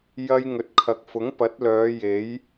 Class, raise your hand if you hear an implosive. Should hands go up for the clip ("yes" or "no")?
no